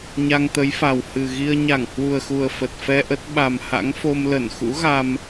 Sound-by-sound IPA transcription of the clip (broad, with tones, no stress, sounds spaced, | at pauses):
ɲ a˧ ŋ t̪ ə˨˦ j f a˨˩ w h ɨ˨˩ ɣ i˧ ə̯ ɲ a˧˩ ŋ h w u˨˩ ə̯ x u˨˩ ə̯ f ə˨˩ t̚ f ɛ˧ ʔ ə˦˥ t̚ ɓ a˨˩ m h a̰˧˥ ŋ f o˧ m l ə˧˩ n x ṵ˧˥ ɣ a˧ m